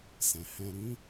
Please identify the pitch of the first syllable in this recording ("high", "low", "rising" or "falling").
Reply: low